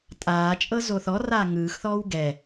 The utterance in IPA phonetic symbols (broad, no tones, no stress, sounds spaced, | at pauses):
tʼ aː t͡ʃʼ ɤ z o θ ɔ r aː ŋ ɯː x θ ɔː w ɡ ɛ